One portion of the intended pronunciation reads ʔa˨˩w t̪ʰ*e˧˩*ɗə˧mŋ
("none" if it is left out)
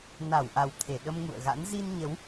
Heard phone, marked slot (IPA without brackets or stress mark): e˧˩